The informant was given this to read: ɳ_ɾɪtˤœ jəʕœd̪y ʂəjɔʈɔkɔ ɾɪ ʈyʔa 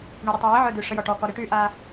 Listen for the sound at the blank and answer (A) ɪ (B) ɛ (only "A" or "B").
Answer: A